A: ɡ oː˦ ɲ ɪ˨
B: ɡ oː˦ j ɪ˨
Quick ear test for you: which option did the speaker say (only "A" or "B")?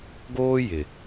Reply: B